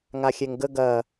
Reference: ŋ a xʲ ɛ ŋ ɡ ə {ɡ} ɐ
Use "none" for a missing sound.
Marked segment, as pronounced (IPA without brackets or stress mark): ɡ